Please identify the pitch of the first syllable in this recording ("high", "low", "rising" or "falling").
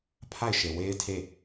falling